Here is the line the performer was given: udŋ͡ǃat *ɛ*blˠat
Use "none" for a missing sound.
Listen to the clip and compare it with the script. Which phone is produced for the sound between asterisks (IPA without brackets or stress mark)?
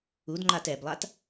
ɛ